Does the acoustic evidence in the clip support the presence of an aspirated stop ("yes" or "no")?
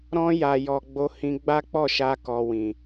no